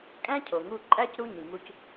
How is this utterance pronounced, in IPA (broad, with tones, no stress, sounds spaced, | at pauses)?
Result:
kʼ æ̃˥ cʰ o˩ ŋ u˧ ǃʼ æ˥ c ɾ u˧ ɲ ĩ˩ ŋ u˧ c